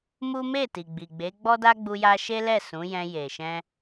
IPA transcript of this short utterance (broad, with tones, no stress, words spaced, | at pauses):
mu˦ me˦˨ti˨ ɡ͡bi˨ɡ͡be˨˦ɡ͡bɔ˦da˦ ɡ͡bu˧ja˧ʃe˦lɛ˦˨ sũ˨˦jɛ̃˧je˨ʃɛ̃˧